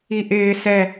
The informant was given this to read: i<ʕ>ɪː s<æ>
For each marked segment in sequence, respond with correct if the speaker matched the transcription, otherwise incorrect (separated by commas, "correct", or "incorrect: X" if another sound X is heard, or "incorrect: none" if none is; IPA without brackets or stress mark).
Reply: incorrect: ʔ, incorrect: ɛ